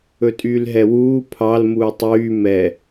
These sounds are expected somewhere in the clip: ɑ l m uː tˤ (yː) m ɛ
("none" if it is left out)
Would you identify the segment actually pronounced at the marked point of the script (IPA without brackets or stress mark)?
yː